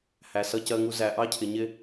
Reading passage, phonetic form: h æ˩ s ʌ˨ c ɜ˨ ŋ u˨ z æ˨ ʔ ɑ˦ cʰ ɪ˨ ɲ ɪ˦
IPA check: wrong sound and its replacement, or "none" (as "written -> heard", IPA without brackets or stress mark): none